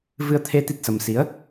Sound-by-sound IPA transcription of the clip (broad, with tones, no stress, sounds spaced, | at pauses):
v ɨ˧ ə̯ t̪ʰ e˧ t̪ i˦˥ t̚ s ə˧ m s i˨˦ ə̯